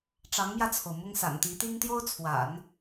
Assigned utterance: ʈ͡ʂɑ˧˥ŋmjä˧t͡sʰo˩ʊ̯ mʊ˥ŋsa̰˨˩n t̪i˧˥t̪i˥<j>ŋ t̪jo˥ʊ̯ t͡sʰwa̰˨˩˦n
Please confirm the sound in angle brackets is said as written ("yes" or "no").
no